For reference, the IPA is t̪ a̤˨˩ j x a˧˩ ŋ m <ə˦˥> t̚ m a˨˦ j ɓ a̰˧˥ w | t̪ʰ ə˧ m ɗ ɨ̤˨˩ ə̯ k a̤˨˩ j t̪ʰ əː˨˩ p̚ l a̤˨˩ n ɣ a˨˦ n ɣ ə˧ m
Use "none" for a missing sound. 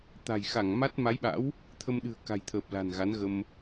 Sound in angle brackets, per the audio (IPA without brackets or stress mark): a˦˥